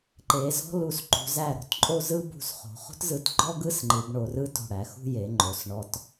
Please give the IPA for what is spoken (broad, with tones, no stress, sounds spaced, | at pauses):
ǃ e˩˧ z ɔ̤˥ l u˧˩ s ǃ ṳ˩˧ z æ˧˩ ɾ o̤˧ t ǃʼ o˥˧ z ɯ˥ b ṳ˧˩ s χ o̤˩˧ χ o̤˥ t z ɯ˧˩ t ɡ͡ǃ ɔ˥ ɡ ɯ˥ s ŋ͡ǃ ɯ˩˧ b ɳ o˩˧ r ɯ˥ t o̤˧˩ ɽ æ˩˧ x ṳ˥˧ j e˩˧ ŋ͡ǃ o˩˧ s ɳ ɔ˧ t